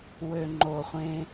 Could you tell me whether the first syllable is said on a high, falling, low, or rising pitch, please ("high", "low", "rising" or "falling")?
low